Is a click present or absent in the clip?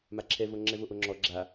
present